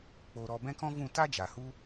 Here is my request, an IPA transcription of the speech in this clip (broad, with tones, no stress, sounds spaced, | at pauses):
k͡p o˦ ɾ ɔ˦ b ɛ̃˦ k ɔ̃˦ v ũ˦˨ t a˦ d͡ʒ a˨ h u˧